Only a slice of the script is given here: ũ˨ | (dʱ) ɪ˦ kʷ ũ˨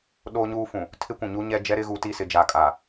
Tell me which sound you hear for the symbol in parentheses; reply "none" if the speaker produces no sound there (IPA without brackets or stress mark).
tʰ